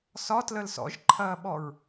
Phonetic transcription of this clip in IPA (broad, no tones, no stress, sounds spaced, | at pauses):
s ɒ t l ə l s ɔ̰ ʒ ǃʰ ɐː ɓ ɔ ɹ